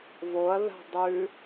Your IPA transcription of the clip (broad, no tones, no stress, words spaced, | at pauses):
voɐ̯ða̤ dˤʉ